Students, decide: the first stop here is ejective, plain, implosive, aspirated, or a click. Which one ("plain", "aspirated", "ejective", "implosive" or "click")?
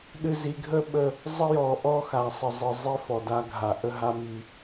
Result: implosive